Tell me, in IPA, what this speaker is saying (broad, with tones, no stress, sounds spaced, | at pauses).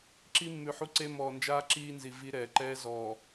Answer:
ǁ i˦ mː ʉ˨ ħ u˦ ǀ e˦ m ɔː˨ n d͡ʒ aː˦ ǁ iː˦ n z i˨ v i˦ ɾ ɛː˨ ǃ ɛː˦ z ɔː˨